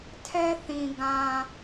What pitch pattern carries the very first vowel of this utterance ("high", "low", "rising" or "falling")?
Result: high